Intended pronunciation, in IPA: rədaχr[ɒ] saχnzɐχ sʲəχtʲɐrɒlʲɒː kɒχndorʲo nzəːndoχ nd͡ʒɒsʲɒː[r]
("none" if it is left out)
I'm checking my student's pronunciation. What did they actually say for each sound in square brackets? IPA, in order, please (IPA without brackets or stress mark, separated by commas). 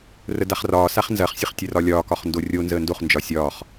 ɒː, χ